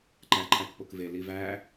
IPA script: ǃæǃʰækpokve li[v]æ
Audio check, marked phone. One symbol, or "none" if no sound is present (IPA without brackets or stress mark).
v